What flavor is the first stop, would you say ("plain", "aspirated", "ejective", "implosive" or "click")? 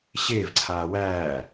click